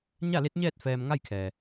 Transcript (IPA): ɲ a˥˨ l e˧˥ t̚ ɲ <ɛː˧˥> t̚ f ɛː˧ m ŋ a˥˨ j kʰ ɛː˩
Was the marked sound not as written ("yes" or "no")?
yes